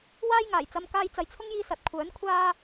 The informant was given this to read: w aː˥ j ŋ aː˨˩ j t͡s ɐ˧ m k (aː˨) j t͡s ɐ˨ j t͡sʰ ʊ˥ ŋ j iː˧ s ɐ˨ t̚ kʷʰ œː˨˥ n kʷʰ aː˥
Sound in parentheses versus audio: incorrect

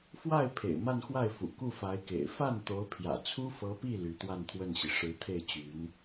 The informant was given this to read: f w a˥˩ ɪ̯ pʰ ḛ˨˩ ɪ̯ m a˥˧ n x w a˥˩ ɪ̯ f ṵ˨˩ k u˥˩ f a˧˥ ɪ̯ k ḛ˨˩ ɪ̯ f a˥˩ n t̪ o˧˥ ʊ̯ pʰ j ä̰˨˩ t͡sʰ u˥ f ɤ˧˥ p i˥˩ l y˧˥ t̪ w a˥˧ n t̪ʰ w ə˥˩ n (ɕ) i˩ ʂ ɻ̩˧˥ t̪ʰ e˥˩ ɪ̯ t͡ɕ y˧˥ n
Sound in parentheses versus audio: correct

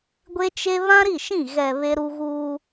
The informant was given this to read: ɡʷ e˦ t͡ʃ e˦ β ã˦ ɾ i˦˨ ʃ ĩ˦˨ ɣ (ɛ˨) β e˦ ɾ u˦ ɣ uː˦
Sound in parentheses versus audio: correct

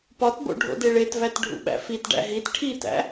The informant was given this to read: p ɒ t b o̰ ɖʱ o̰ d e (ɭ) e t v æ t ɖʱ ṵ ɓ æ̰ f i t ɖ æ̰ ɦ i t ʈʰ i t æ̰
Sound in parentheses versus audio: correct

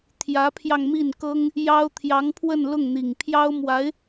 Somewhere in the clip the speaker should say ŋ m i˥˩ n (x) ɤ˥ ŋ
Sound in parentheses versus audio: incorrect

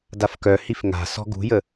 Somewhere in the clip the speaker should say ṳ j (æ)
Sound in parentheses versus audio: incorrect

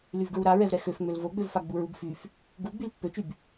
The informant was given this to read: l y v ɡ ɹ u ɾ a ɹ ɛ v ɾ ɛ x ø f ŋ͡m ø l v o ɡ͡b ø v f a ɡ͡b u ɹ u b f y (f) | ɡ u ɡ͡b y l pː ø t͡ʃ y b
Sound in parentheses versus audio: correct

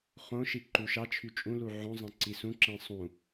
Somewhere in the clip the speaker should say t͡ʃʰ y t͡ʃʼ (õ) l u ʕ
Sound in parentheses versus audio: incorrect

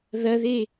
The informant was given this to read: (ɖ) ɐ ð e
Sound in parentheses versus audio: incorrect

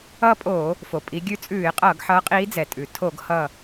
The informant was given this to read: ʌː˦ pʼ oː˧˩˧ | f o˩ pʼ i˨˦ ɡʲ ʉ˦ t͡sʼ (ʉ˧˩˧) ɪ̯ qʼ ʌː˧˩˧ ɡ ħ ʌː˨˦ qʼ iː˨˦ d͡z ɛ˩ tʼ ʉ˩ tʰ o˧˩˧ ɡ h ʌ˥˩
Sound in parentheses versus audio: incorrect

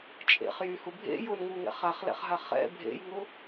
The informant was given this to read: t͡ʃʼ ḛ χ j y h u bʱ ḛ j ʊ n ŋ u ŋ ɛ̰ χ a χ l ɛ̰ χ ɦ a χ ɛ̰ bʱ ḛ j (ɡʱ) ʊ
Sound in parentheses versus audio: incorrect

